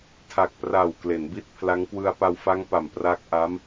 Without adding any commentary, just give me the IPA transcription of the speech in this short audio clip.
tʰa˨˩k̚pra˨˩w kle˩˦nbi˥˩t̚ pʰla˦˥ŋ kwɯ˧a̯pa˧wfa˦˥ŋ pa˨˩m pra˦˥k̚ʔa˦˥m

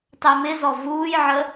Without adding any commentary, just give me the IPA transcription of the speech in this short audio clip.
tˤɛmɪzɔ vuːjʕə

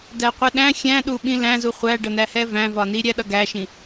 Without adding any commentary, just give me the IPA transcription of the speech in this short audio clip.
dæqʷɛɗæ̃ xʲæ̃ɗu ɓĩlæ̃zu χʷæɖʌnæhɛ væ̃vɒni ɾʲæɗʌɡæʃĩ

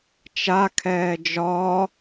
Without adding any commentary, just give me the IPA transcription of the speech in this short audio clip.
t͡ʃakʰɛː d͡ʒɒː

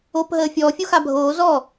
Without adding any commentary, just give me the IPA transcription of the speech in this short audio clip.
opɦəː fʲɔːfʲoxa bʱoː zɔ

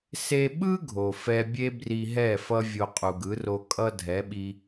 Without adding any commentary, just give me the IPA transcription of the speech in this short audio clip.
se˧ɓɯ˦ ɡʱo˨fɛ˧bʲe˦ bri˧ɦɛ˦˨fʌ˦ vʲo˧qʼu˨ɡɯ˨˦ro˧ kʼʌ˦dʱɛ˨˦ɓi˧

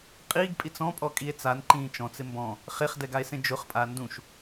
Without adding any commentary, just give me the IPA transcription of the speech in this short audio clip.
qʼiɡpʼit͡s ɔ̃pʼɔkʼie̯ t͡sanǃĩː t͡ʃɔ̃t͡sɪ mbɔ̃ | χeχdɛɡae̯sẽ d͡ʒʊχpʼa ndũʃ

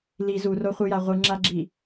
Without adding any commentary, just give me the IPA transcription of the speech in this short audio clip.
li zuroχʷɨja ʁʷɨŋ͡ǁaɡ͡ǁi

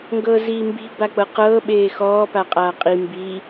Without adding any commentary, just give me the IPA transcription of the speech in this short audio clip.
ŋɡɤːziːmbi̤ bak͡pɤqɤː ɓeːxɔː paqʼaːqʼi mbiː

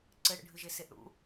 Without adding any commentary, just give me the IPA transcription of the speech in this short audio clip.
ǀɘɽə̰ɖʱɨʒe seʔɽṵ

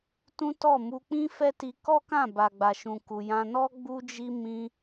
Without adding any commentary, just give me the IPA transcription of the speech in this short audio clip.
tũ˦tɔ˦˨ mu˧k͡pĩ˦fɛ˦ti˧ kɔ˦kã˦˨ ba˨ɡ͡ba˨ ʃũ˨ku˨ jã˧ nɔ˦ ɡ͡bu˧d͡ʒi˧ mĩ˦

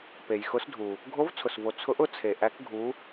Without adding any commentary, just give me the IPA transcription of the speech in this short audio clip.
pe˩jxʊ˨˦sdʱu˩ | ɡʱo˨˦vt͡sʰʊ˩svo˩ t͡sʰʊ˨˦ʔʊ˨˦t͡sʰe˩ ʔæ˨˦kɡʱu˨˦

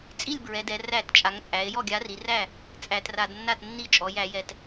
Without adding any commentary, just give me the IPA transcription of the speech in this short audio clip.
t͡sʼi˥˩lʲbɹɛ˩˧dɛ˩˧ ræ˧˩˧tt͡ʃʼa˩˧ŋt͡sʼæ˩˧e̯ jɔ˥˩ɡʲa˨˥ri˩˧ ræ˥˩ | t͡sʼæ˧˩˧tra˧˩˧dnːa˥˩tnːi˥˩ t͡ʃʼɔ˩˧jæ˧˩˧jɛ˧˩˧t

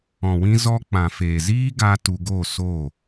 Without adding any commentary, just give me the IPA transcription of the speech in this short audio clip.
ɔ̃˨wĩ˧zɔ˧k͡pã˨ feː˨ziː˦ɡa˧ tu˧ɡo˦˨so˦˨

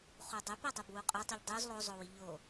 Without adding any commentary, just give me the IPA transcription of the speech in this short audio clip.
χudˤɛpɛ dˤubwuqʼotˤuʎ dˤuz lˠozˤowi ʎo

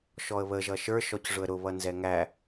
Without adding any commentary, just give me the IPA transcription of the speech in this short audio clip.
ʃɔə̯βə ʒʌʃə˞ ʃɔcʐʊə̯ɾʊ βʌnzɛŋæ

